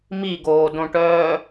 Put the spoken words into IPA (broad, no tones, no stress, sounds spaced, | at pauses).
m i ɡ oː d õ ʈ œː